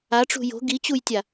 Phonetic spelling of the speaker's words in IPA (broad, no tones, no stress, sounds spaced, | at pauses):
a ʈ͡ʂ ṳ j o̤ ɡ i t͡ɕ u j tʲ a